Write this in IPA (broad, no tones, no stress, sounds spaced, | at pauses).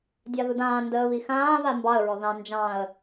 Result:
dʲ ɑ ð u d ãː n d əː β i x ãː β a m b ɑ ə̯ ɹ ɔ ð ɑ̃ n d͡ʒ ɑ̃ ə̯